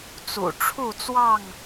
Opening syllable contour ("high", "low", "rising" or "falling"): low